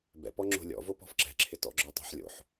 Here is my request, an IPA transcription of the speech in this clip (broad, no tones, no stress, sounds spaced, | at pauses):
b ɛ̰ p ɔ ŋ͡ǁ o̤ lʲ ɔ̰ v o p ɔ̤ f ǁ ɛ̤ ǁʰ ɪ t ɔ̰ ɡ͡ǁ ɔ tˤ o̤ ħ lʲ o̰ ħ